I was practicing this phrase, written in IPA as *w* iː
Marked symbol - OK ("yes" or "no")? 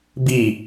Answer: no